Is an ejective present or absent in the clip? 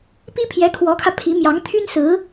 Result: absent